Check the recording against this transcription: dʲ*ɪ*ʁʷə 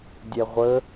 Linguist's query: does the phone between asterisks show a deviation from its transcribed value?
yes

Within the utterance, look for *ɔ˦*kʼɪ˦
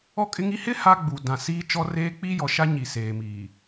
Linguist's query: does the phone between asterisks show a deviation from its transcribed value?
no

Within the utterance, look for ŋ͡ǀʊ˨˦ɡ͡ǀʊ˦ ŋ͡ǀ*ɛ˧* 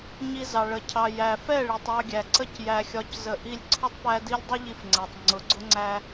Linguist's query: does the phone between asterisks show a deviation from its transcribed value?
yes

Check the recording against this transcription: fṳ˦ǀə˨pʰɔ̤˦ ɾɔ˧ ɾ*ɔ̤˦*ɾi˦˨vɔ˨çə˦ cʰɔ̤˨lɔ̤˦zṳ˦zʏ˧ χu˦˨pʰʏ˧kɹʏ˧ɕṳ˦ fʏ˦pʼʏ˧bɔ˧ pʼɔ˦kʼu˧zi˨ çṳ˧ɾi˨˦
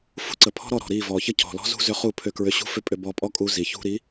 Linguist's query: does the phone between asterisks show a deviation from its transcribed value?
yes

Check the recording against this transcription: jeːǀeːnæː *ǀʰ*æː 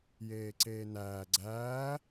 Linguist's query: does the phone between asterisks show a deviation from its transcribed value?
yes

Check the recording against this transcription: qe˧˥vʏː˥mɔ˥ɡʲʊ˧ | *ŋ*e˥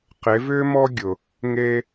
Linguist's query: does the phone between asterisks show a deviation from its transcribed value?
no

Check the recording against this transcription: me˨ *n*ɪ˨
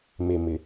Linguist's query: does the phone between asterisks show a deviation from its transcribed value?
yes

